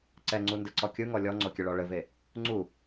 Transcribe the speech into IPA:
ǀɛŋ͡ǀundɘǀɔ kʲɯŋɔ lʲɔŋ͡ǀokʲɘɭɔ ɭɘve | ŋ͡ǀu

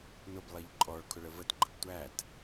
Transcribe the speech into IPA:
nʊblˠiʎ ǃʼɔɭkʰʊɭə vətɡ͡ǃəb tʷæt

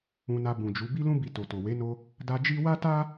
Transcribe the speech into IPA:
ũ˧na˧ bũ˨d͡ʒu˨˦ bi˦lũ˦ bi˧to˨to˨ we˨˦no˧ | da˧ d͡ʒi˦ wa˦ta˦

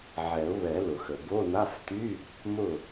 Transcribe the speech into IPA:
ʕɛ˨˩˦ʊ̯βɛ˨˩˦ lʊ˩xə˩ bo˧˥˧na˧˥˧fty˧˥˧ | mʊ˥˩

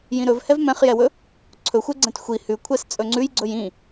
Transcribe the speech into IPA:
jĩɾɵv hɛvmɛ̃χjɛwɵ | ǀʰɵxʷɛɡ͡ǀɛ̃t xʷi hʉkʷʰɛs t͡sʼɵŋ͡ǀʉjɡ͡ǀɵj ĩ

